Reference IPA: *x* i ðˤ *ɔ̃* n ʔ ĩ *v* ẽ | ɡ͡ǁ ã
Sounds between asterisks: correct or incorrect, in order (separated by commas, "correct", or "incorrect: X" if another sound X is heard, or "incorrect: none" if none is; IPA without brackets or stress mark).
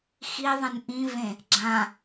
correct, incorrect: ə̃, correct